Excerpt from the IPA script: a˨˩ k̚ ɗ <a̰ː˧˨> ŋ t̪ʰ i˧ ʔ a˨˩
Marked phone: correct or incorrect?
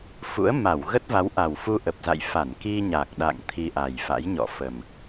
correct